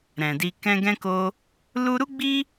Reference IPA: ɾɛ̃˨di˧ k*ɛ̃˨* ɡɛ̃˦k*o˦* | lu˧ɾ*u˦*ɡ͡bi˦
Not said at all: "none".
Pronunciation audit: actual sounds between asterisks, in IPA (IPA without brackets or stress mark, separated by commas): ɛ̃˧, o˦, u˦